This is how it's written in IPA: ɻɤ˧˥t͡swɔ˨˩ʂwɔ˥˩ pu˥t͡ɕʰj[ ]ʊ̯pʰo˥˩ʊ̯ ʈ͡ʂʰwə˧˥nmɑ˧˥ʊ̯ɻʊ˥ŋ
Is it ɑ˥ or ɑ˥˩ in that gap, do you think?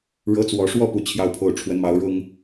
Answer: ɑ˥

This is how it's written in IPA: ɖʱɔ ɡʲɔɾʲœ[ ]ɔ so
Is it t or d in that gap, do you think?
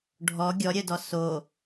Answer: d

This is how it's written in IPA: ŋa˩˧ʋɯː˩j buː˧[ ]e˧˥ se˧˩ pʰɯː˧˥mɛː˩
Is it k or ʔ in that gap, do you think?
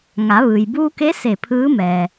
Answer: k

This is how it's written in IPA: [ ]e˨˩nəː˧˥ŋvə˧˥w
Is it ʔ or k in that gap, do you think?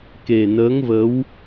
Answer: k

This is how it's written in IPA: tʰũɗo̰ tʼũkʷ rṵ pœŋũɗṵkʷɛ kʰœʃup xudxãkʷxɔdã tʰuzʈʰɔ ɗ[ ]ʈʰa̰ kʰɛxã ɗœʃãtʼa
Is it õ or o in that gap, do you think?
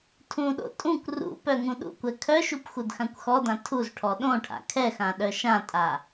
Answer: õ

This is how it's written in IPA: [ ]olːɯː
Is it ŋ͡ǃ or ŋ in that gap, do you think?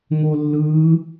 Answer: ŋ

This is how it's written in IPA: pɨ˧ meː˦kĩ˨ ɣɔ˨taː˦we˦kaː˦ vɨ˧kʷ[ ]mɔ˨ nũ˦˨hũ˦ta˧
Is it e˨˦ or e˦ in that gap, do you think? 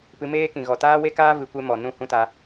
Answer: e˦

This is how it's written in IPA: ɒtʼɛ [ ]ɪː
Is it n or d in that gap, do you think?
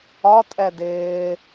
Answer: d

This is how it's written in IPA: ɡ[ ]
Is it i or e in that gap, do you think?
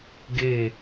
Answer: e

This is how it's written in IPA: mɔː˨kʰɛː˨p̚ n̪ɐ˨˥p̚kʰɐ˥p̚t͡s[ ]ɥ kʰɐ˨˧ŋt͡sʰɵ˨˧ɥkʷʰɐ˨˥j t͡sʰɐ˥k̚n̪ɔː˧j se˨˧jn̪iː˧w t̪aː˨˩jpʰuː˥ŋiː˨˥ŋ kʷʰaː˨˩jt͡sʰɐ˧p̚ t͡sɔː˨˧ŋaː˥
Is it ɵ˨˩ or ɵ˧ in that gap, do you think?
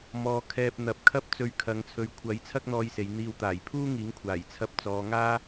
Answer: ɵ˧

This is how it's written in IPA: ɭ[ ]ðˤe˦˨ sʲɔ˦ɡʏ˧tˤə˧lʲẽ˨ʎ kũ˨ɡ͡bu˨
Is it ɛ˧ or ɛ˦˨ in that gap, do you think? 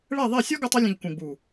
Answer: ɛ˦˨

